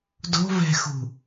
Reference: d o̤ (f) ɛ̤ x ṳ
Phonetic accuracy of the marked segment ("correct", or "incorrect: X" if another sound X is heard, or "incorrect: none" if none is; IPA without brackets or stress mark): incorrect: v